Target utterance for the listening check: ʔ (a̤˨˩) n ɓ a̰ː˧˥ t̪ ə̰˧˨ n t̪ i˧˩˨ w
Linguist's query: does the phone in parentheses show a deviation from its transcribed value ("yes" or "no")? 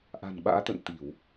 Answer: no